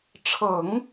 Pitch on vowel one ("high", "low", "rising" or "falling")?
low